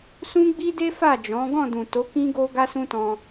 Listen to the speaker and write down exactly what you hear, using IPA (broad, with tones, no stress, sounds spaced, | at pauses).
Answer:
s ũ˦ ɡ͡b i˦ d e˦ f a˦˨ d͡ʒ ɔ̃˨˦ ɡ ɔ̃˦˨ d ũ˨ t o˨˦ k ĩ˦ ɡ o˦ ɡ a˦ s ũ˦ t ɔ̃˧